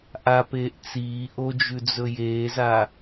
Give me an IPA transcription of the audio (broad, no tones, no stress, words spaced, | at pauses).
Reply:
ʔapeːʔ t͡siː ʔod͡ʒʉd͡zɵ jeːza